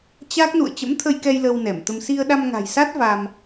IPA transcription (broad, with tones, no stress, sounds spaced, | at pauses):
t͡ɕ a˦˥ k̚ n ṵ˧˨ ə̯ t͡ɕ ə̰˧˥ m t̪ʰ ə˧ j k ɛ˧ j l ə˧ w n ɛ˧˩ m t̪ ə˧ m s i˧ ə̯ ɗ a˧ m ŋ a̤˨˩ j s a˦˥ t̚ v a˧ m